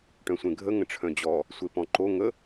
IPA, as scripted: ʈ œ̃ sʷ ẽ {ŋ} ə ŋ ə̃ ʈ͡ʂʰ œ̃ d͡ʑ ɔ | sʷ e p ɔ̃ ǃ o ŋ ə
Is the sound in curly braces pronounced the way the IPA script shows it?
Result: no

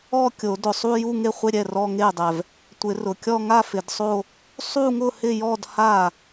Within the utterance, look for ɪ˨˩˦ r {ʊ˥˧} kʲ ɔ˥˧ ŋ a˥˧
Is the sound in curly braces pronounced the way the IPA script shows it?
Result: no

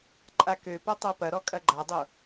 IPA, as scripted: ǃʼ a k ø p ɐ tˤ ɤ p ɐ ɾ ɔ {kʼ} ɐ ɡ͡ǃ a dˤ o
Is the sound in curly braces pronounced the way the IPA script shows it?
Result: yes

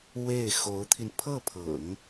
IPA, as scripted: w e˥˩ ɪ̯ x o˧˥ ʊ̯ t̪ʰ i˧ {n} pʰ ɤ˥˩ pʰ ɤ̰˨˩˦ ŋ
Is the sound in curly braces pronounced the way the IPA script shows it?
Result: yes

